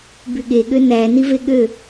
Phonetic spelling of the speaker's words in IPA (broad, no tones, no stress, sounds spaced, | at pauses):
b y ɠ e ɠ ø n æ n i v e ɠ ø